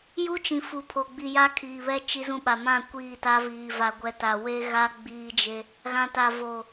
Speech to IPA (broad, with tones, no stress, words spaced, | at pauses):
ju˦t͡ʃĩ˨ fu˨pʰo˨ɡ͡bi˨ja˦ kʰiː˨βɛ˦ t͡ʃi˦zũ˦ɓa˨ mã˦˨ kʷiː˦˨ta˦viː˨ va˨ɡʷɛ˨ ta˨we˦ɣa˦ ɡ͡biː˦d͡ʒe˦ | ɣã˨ta˨ vo˨